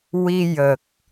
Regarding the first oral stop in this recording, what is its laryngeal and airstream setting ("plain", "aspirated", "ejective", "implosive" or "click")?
plain